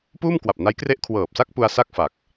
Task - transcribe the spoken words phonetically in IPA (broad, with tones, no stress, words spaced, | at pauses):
puː˥˩mkwa˨˩p̚ na˦˥j kre˦˥ʔkʰwɤː˨˩p̚sa˥˩k̚ pu˧a̯sa˥˩k̚ fa˨˩k̚